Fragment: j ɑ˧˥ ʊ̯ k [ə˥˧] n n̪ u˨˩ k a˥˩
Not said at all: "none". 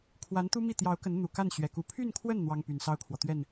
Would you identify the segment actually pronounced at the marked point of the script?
ə˧˥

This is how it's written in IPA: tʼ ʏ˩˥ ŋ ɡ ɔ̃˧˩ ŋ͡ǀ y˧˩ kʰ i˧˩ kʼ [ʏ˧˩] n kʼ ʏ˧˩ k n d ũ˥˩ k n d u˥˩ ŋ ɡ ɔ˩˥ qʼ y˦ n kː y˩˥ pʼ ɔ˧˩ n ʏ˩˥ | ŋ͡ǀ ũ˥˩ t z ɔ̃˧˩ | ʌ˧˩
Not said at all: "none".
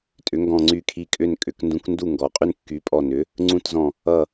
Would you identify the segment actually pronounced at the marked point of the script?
ʏ˥˩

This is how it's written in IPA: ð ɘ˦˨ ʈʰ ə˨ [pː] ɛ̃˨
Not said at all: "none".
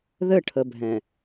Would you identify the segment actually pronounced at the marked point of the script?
bʱ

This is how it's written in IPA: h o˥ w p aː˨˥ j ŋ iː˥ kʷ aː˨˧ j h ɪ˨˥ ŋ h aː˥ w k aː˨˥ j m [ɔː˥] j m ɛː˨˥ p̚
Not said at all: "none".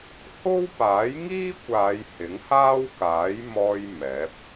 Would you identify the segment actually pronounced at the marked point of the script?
ɔː˧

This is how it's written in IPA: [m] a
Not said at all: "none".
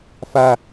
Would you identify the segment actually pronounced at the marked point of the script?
f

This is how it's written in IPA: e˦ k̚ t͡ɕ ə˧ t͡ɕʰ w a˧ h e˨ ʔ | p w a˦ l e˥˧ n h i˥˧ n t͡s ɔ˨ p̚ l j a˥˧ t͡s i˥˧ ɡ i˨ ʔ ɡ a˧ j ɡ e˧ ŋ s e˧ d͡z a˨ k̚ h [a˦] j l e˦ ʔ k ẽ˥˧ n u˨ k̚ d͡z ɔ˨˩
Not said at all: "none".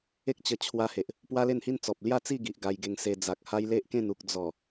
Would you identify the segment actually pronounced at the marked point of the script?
a˦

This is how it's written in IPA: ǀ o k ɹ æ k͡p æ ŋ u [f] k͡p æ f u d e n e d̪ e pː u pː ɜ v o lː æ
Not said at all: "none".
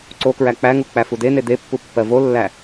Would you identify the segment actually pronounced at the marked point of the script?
none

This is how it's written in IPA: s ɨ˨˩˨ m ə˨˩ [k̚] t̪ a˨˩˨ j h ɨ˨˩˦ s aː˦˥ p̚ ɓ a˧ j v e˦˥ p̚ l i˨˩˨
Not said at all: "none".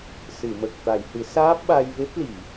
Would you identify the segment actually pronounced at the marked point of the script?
k̚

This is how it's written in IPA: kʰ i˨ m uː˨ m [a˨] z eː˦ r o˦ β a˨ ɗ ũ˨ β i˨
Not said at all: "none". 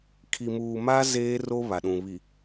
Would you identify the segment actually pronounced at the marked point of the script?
a˦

